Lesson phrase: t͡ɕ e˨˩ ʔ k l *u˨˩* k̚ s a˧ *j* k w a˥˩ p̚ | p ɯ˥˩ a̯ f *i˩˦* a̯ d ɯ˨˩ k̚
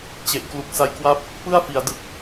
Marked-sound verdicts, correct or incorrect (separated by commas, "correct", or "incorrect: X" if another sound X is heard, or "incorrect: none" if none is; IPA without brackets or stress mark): correct, correct, correct